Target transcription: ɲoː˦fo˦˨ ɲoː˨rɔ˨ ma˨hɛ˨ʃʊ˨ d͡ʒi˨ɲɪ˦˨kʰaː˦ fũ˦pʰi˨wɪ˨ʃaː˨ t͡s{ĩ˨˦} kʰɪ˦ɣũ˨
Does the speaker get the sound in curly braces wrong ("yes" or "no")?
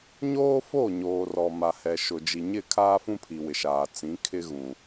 no